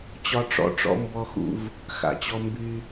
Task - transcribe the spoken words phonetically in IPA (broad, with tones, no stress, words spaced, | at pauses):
t͡ɕɒ˦ʈ͡ʂɔ̰˦ʈ͡ʂɔ̰˦ mbɔ˦xṵ˦v | xa̰˧˩t͡ɕɔ˦ mby˦